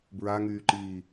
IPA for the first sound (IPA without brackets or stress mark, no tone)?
b